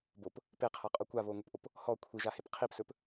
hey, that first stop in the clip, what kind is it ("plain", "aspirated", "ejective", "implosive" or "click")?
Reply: plain